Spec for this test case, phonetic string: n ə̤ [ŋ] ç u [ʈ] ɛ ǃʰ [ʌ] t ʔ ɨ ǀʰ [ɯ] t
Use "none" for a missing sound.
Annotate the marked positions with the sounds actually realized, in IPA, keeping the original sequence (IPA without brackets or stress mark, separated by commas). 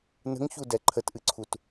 ŋ, d, ə, u